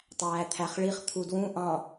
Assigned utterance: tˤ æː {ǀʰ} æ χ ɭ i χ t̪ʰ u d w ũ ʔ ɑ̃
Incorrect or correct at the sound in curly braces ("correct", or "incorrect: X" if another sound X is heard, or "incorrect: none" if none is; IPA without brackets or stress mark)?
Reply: incorrect: t̪ʰ